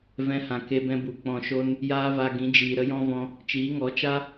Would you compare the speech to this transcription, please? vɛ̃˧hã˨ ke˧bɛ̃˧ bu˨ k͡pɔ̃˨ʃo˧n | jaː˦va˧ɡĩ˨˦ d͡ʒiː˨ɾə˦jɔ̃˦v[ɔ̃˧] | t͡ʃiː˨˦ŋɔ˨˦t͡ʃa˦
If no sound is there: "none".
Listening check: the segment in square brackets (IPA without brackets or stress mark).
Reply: ɔ̃˧